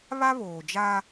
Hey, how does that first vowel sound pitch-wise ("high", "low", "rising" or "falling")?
high